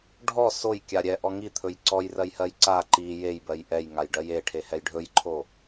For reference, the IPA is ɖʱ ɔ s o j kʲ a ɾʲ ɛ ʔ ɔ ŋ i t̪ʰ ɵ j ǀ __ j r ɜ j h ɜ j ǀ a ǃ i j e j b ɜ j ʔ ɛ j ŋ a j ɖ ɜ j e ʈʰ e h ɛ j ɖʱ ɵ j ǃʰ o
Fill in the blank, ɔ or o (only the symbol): ɔ